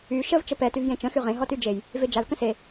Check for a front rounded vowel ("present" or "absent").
present